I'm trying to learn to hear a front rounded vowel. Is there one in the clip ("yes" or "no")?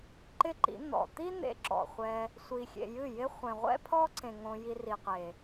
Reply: no